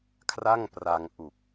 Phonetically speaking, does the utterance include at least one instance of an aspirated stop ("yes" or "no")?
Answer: yes